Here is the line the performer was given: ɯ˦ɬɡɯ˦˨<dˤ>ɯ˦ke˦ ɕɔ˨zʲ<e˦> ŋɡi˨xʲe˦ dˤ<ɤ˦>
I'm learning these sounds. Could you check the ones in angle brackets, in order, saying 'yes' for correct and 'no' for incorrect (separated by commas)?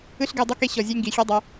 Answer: yes, yes, yes